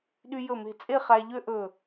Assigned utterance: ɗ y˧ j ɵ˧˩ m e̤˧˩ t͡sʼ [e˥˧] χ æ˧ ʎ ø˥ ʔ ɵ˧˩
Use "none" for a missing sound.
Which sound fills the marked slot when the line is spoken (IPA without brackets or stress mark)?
e˥˧